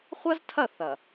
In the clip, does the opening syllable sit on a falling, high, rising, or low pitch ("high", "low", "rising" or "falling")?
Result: high